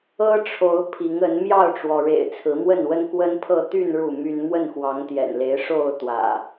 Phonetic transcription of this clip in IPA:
ɤ˦ʈ͡ʂʰo˨˦ʊ̯ pʰi˨˦ŋ ə˨˦n mjɑ˥˨ʊ̯ʈ͡ʂwɔ˩ɻḛ˨˩ɪ̯ t͡sʰɹ̩˨˦mwə˥˨nwə˦n kwə˦npʰɤ˥˨ t̪y˥˨n ɻu˥˨my˦n mwə˥˨nxwɑ˨˦ŋt̪jɛ̰˨˩nle˨˦ɪ̯ ʂo˥˨ʊ̯t̪wä̰˨˩

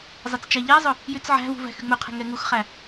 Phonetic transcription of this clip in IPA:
zˤɐt͡st͡ʃæʎɛɐ̯zˤɵ | jyt͡sʕæ̤vṳ væ̤xyŋ͡mɵqʰɛ̤ ŋɛŋuxχæ

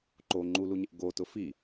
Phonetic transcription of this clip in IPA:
ǃo ŋ͡ǃuluɲɪʔ ɡotʊ fi

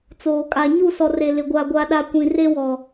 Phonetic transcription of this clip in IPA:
t͡soː˨kʼa˨ ɲu˦˨sɔ˨re˨lɪ˨ ɡʷa˨ɡʷa˨ɗa˨ kʷĩ˨re˦wɔ˨

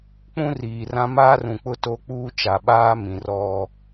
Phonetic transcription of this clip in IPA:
k͡pũ˦riː˨rã˦ maː˦rũ˨k͡pʊ˦ to˦k͡puː˦ t͡ʃa˨ɓaː˦mĩ˨ rɔ˦

